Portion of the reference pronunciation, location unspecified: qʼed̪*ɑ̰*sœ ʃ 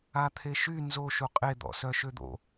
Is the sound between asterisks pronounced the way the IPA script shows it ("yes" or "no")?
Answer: no